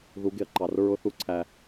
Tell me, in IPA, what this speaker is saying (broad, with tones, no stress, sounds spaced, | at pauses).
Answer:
ð u˨˦ ɡ ɪ˨ ɐ̯ ǃ ɑ˨ r ɹ ʊ˧ θ u˦ ǀʰ æ˧